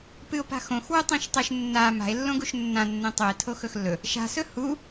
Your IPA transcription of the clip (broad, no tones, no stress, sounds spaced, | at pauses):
p ɨ o̯ p a̤ x õ x w ʉ tˤ ĩ ʃ tˤ ɨ ʃ nː a m a̤ e̯ lː õ ɡ u ʃ nː ã nː ẽ tˤ u e̯ tʰ o x ɵ x lː ɵ | ʃ a̤ s ɵ h u